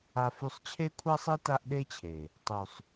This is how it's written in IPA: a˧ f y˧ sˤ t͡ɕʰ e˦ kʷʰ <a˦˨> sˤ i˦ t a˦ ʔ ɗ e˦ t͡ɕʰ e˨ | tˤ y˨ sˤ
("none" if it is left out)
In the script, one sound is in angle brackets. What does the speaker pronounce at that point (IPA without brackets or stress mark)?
a˦